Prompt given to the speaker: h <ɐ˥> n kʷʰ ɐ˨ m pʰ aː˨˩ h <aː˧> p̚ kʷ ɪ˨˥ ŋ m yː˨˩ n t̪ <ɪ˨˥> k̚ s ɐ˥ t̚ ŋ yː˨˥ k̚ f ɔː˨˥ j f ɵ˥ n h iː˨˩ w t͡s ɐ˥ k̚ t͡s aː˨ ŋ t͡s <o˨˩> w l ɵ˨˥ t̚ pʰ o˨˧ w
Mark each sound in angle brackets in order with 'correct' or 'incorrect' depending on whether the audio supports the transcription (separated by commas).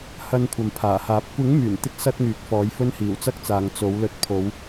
incorrect, incorrect, incorrect, incorrect